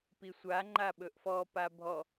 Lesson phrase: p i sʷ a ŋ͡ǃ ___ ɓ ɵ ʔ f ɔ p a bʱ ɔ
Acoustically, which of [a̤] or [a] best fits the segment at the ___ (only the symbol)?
a